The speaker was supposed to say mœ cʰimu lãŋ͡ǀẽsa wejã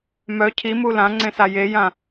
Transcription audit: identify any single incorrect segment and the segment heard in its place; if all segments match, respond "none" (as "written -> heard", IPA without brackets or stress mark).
w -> j